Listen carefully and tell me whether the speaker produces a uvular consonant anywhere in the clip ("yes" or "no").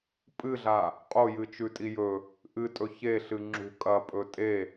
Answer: yes